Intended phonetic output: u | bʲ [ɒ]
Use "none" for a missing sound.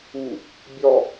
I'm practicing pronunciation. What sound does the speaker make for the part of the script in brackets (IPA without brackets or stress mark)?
ɒ